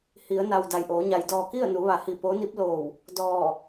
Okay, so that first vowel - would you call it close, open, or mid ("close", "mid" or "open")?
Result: close